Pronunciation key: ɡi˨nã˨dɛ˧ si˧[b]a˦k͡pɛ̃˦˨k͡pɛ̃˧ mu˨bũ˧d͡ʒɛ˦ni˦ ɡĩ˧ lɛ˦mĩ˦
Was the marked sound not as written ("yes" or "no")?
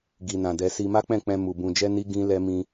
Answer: yes